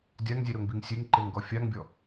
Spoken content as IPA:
dʲaŋzʲeɾoŋbiŋ sʲeŋǃeŋɡɔ fʲaŋbʲɔ

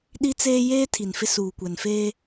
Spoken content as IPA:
ɗi˦t͡seː˦ jeː˦ tʰi˨nfɪ˦ suː˨kʷɛ˨nfeː˦

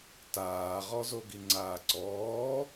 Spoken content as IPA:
taːʁɔzoɡi ŋ͡ǀaːǀɔː

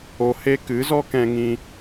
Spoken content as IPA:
o˧ he˦ kɨ˨˦zɔ˦kɛ̃˧ ŋĩ˦

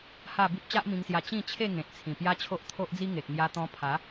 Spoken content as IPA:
ha˥˧ bi˦p̚t͡ɕa˦ʔmĩ˧ŋsja˧ t͡ɕĩ˥˧t͡ɕʰe˥˧ ŋẽ˨t̚ t͡sʰĩ˨˩pja˦t͡ɕʰo˦ʔ t̪ʰo˦ʔd͡zi˦ŋe˨k̚ ŋja˧t̪ɔ̃˧ pʰa˨˦

